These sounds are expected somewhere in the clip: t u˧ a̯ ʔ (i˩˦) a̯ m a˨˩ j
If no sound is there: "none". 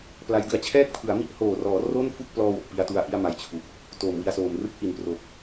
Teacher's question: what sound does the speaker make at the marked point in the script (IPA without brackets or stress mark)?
i˥˩